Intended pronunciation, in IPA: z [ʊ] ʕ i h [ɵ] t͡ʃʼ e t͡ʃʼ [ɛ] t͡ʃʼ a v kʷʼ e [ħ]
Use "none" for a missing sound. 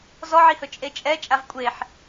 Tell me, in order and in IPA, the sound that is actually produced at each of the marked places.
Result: ɔ, ɵ, ɛ, ħ

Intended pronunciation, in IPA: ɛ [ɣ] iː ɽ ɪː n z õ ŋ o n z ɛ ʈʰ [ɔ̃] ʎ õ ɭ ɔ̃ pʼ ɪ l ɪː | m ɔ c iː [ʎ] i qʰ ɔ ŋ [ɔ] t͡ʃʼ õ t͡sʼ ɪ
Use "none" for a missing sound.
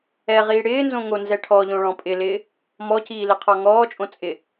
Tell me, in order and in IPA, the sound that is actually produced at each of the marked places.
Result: ʁ, ɔ, l, ɔː

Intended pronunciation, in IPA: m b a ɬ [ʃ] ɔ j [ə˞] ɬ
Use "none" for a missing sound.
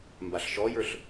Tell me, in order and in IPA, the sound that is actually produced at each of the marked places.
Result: ʃ, ə˞

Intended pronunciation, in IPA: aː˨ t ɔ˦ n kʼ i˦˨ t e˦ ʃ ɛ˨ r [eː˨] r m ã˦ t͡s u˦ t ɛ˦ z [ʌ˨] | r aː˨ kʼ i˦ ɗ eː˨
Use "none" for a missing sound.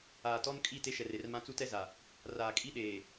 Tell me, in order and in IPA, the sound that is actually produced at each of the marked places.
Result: e˨, a˨

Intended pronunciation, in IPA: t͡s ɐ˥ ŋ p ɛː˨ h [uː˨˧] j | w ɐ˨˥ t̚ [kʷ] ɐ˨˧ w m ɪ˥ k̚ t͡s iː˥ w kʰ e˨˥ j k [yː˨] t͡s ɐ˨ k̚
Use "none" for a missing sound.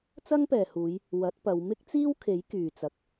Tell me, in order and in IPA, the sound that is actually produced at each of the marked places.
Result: uː˨˧, p, yː˨

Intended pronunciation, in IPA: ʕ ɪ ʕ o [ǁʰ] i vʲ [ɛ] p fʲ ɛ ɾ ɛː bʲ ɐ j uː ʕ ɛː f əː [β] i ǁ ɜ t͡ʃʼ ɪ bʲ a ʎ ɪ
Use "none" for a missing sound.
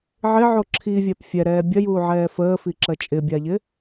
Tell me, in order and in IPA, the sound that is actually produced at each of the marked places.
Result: ǁʰ, ɛ, f

